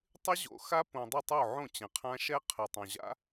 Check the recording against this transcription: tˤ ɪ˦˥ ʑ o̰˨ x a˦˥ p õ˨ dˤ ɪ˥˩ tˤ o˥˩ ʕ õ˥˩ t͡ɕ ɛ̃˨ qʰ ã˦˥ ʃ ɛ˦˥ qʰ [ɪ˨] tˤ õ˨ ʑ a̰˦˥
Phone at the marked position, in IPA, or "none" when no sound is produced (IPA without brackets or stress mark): ɛ˨